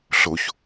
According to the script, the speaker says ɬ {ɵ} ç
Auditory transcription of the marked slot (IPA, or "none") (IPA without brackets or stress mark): o